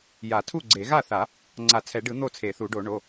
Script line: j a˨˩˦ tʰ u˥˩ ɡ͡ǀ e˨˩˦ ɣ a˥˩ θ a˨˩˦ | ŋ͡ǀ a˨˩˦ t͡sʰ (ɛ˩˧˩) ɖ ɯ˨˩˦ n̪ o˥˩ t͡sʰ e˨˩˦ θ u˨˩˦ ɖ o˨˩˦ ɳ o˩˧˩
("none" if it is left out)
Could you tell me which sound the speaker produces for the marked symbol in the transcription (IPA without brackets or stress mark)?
ɛ˨˩˦